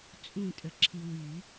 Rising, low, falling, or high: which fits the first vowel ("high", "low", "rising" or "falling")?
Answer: falling